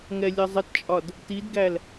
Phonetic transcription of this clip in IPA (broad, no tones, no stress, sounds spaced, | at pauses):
ŋ ɛ lʲ ʌ zˤ ə t t͡ʃʼ ɒ d | t i d ɡ æ l